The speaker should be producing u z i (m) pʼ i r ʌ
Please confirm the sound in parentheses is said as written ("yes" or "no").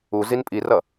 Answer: no